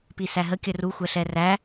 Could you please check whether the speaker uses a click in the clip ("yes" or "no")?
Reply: no